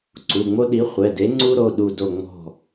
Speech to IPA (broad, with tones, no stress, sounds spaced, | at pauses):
ǀ u˩˧˩ ŋ͡m o˦ ɗ i˨˥ χʷ ɛ˩˧˩ d e˨˥ ŋ͡ǀ u˦ ɾ o˩˧˩ ɗ u˧˩ d o˧˩ ŋ͡m ɔ̤˧˩